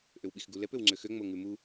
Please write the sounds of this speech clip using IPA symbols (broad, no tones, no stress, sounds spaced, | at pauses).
ʔ ø w ɓ i x ɡ u l ɛ p ø w ŋ͡ǀ ø x ø ŋ͡m o ŋ ʉ m u